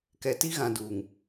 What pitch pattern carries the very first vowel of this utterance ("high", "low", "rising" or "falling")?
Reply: low